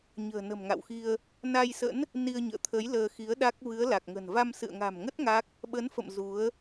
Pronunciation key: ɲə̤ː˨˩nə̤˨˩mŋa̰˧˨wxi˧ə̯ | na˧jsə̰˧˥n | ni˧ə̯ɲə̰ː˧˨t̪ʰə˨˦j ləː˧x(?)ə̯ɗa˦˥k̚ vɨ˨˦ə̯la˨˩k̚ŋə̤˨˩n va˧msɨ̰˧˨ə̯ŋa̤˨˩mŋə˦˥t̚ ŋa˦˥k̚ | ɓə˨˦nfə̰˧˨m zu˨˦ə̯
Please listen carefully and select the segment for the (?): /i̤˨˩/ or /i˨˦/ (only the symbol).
i˨˦